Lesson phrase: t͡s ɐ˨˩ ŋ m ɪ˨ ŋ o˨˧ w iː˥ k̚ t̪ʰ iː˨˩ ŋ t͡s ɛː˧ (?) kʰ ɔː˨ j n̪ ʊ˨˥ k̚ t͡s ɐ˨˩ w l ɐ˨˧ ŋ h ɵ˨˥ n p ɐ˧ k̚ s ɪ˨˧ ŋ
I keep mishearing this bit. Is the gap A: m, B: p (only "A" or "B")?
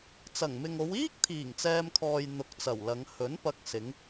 A